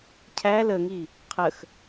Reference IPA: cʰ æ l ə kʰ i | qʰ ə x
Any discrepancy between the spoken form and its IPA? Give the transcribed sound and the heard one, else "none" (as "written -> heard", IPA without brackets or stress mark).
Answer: kʰ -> ŋ